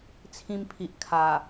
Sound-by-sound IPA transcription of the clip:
t͡sʰ ĩ˧ m pʰ i˨ ʔ kʰ a˨˩

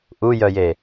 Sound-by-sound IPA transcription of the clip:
ʔ u j œ j e

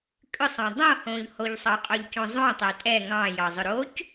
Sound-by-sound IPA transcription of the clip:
kʼ ʏ sˤ ɑ̃ dˤ õ h õ ʎ h o ʎ sˤ ɑ qʼ o ʎ c õ zˤ õ tˤ ɛ tʼ ɛ ŋ ɑ̃ j ɑ zˤ ʏ ɾ o c

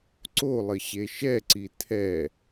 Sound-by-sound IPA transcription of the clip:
ǀ o lˠ ɘ ɕ e ʃ ɛ ǀ i tʰ ɛ

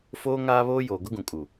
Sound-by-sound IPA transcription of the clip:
f oː˦ ŋ aː˦ β oː˦ j oː˨ ɡ ʊ˦ ɡ ũ˨ kʼ u˨

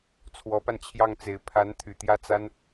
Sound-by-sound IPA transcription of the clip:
t͡sʰ w ɔ˧˥ p a˧ n t͡ɕʰ j ɑ˥˩ ŋ t͡s e˧˥ ɪ̯ pʰ a˧˥ n t̪ʰ y˨˩ t̪ j ä˥˩ t͡s a˥ n

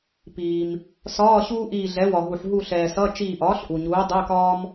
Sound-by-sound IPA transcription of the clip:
p iː˩ m | s ɒː˧˥˧ ɕ uː˥ ʔ iː˧˩ ɮ ɛ˩˥ w ɒ˩ ɦ u˩ ħ ɦ u˧˩ ɬ ɛː˩ s ʌ˧˥˧ t͡ʃ iː˧˩ ʔ ɒː˩˥ ɬ ʔ u˩ ɲ uː˩˥ dˤ ɛ˧˥˧ k ɒː˥ m

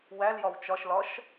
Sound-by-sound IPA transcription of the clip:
w æ l j ɒ w t͡ʃ ɒ ʃ l ɒ ʃ

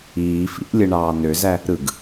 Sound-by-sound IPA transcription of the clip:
iː f ḭ ʔ lʲ ɯ ɳ ɑː n ø z æ | ɾ ɯ ɡ

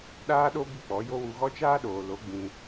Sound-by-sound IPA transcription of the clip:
ɗ aː˦ ɗ o˦ b i˦ k͡p ɔ˨˦ j o˦ w u˧ ɣ ɔ˦ t͡ʃ aː˦ ɗ oː˨ l o˨˦ ɡ͡b ĩ˧

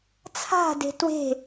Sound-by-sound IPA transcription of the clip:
t͡sʰ a̤ d e̤ t w e̤

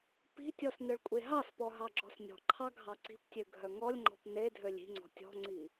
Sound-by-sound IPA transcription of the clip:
p i̤ tʲ ɔ s n œ ɭ kʷʼ e ɦ ɑ s p ɔ ɦ ɑ ɡ͡ǁ ɔ̤ s nʲ ɔ̤ ǃʰ ɑ ɡʱ ɑ ǀ i̤ p tʲ ø ɡʱ œ ŋ ɔ lʲ ŋ͡ǃ ɔ̤ p n e dʱ ø lʲ i̤ ŋ͡ǀ ɔ̤ tʲ ɔ̤ ŋ͡ǀ i

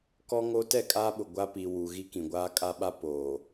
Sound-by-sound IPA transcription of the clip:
k ɔ˦ ŋ o˦ t ɛ˦˨ kʼ aː˦ ɓ ʊ˨ ɡʷ a˦ p i˨ w u˨ ɣ i˦ k ĩ˨ ɡʷ aː˦ kʼ a˦ ɓ a˦ p oː˨

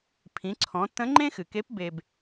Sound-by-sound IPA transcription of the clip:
pʰ ĩ˩˧ ǀʰ ɔ̃˩˧ tː ə̃˧˥ ŋ͡ǃ ẽ˥ x ɨ˩ k e˧˥ p b e˧ b

